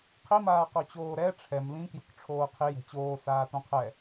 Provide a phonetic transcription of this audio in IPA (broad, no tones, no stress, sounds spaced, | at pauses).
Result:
qʰ i m aː q o t͡ɕ oː ɾ ɛ ʈ͡ʂʰ ɛ m l ĩ k j o̤ k ʈ͡ʂʰ oː qʰ i j ɛ̤ t͡ɕ oː s aː t õ qʰ ɛ